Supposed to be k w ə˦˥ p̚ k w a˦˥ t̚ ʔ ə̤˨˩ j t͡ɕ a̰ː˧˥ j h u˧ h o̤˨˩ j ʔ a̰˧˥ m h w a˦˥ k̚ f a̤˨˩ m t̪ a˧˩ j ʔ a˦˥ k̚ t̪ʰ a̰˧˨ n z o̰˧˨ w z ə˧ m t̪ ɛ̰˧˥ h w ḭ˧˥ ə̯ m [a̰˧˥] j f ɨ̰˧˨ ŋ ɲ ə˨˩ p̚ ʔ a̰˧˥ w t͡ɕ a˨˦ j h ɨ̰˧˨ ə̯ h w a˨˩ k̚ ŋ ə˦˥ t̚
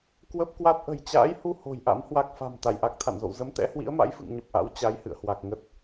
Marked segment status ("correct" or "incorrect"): correct